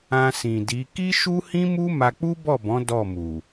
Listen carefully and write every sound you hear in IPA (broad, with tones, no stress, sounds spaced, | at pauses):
ã˧ s ĩ˨ d i˨˦ k i˦ ʃ u˦ h ĩ˦ m u˦ m a˧ k͡p u˦ b ɔ˦˨ b ɔ̃˨˦ d ɔ˦˨ m u˨